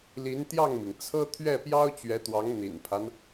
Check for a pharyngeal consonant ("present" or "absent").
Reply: absent